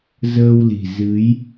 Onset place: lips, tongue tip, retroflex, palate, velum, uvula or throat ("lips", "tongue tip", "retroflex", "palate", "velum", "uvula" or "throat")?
tongue tip